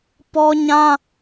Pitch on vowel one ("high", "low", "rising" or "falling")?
high